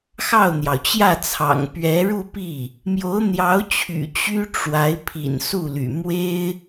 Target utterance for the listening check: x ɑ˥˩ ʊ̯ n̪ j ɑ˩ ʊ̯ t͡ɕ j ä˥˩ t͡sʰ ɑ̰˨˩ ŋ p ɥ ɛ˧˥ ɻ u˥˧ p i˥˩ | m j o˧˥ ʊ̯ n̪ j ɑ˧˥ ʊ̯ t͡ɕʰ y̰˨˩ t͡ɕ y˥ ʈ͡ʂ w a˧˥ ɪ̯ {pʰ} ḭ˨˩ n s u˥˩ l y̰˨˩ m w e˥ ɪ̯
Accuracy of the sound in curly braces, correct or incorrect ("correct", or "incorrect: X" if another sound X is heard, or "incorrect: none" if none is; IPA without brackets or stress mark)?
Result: correct